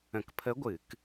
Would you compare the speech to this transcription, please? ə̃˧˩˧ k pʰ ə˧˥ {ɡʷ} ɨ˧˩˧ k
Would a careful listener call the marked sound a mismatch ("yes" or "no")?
no